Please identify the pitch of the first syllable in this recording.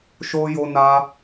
high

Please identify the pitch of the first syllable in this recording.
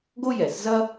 high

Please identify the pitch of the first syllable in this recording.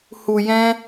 low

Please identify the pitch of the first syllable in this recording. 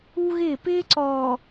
high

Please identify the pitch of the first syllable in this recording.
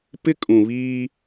high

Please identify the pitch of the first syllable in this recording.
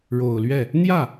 low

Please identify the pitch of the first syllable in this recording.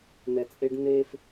low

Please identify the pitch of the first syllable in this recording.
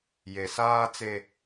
low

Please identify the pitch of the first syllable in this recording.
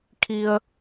low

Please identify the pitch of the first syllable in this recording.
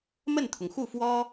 falling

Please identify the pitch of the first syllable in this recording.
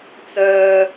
high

